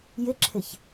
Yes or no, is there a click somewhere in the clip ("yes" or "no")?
yes